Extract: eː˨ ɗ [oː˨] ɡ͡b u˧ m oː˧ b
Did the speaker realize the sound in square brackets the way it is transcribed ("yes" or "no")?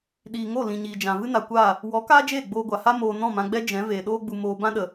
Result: no